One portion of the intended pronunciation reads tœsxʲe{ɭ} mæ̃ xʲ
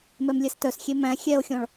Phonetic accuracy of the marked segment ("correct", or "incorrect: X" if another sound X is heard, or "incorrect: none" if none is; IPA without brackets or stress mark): incorrect: none